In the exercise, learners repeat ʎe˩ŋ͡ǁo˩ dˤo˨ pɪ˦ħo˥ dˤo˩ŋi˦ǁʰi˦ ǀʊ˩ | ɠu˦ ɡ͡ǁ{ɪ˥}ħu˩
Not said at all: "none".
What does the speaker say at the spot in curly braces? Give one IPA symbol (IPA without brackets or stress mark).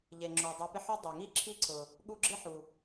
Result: ɪ˥